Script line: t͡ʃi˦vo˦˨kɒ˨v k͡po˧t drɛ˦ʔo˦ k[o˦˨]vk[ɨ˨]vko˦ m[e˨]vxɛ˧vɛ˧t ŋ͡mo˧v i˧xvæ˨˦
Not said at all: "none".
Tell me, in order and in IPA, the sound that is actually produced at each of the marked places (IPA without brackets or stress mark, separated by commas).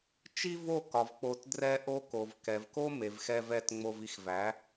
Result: o˨, ɛ˨, e˨